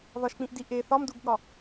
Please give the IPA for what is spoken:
ðɒʃk͡pĩʔdi ʔe θɒmduɡɠɒ

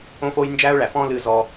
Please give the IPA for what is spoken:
õ˦fo˦j nd͡ʒæ˦ʊ̯ɭæ˨fɔ̃˦ lɨ˦zɔ˦

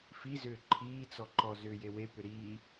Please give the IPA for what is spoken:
fizʏː ǃʰiːt͡sɔ ǃɔzʏːjewe pʏɾiː

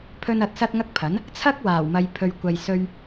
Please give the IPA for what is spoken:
pʰɵ˧n ɐ˨t̚sɐ˧t̚ ŋɐ˥k̚pʰɐ˨˥n | t͡sʰɐ˥k̚waː˨˩wmɐ˨j pʰɵ˨ɥkʷɐ˨jsɵ˧ɥ

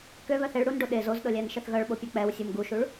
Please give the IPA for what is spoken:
køβœθ eɭ ɽunɖo ɗez ozɗɤlʲænʃəθ ɣœɭɓopʲɛ k͡pɛwsʲum ɡuʃuɭ

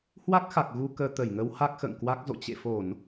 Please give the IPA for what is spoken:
hwa˦˥k̚xa˨˩k̚ɣu˧ kəː˧ t̪ə˧˩jŋə˨˦w ha˦˥k̚xə̰ː˧˨ŋkwa˦˥k̚zo̰˧˨ t͡ɕḛ˧˨ fo˧˩˨n

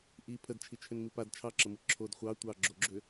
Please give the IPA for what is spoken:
ʔi pʰədt͡ʃʰit͡ʃʰʏnmi pad t͡ʃʰɑǁəmɯ ǁʰod χʷɑ tʷɑɡ͡ǁoɡ͡ǁʏ

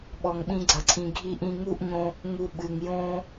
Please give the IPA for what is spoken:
ɓɔ˧ŋɓĩ˦ɡ͡ǀɐ˧ǀʰĩ˧ ɡʱi˧ʔĩ˧ŋu˦ʔɲõ˧ | ŋu˧ɓɨ˨ŋjõ˦

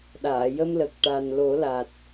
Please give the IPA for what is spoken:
ɗaː˨˩˨jə˧mlə˨˩k̚ ʈa˨˩n lo˨˩˦la˨˩t̚

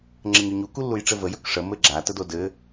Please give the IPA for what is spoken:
ŋ͡ǁəɲɵɲu kulːujʈ͡ʂɘvə jɵkʂə mɘɡ͡ǁa tədodɘ

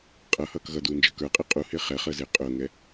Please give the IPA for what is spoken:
qʼʌhʌːk ɣʌduːnd͡ʒəːk ə˞qʼɪ qʼuhɪː χɛχəːzɪː qʼʊːŋɛ

